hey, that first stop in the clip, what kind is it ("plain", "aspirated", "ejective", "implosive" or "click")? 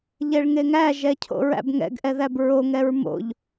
aspirated